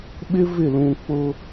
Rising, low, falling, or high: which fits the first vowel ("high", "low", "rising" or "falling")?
high